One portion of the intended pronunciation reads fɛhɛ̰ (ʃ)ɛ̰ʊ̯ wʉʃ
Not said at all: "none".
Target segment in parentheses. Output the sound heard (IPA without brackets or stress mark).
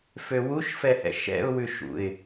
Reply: ʃ